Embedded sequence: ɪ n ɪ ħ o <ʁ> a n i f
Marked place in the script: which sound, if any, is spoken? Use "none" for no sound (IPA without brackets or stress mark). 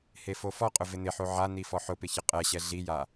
ʕ